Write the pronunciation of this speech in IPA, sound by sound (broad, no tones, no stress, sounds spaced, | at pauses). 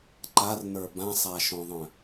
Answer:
ǃ a r n ə˞ b ã sˤ a ʃ õ ðˤ œ̃